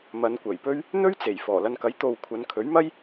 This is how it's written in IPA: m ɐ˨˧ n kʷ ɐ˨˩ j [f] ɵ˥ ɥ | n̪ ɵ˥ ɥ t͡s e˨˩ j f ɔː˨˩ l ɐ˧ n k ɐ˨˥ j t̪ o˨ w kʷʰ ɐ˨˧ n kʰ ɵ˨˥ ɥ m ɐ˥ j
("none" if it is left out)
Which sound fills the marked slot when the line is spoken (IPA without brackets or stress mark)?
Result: p